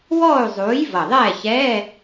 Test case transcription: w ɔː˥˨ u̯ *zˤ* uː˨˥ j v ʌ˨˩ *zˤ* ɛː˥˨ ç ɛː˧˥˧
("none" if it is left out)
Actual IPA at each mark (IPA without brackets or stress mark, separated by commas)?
zˤ, ðˤ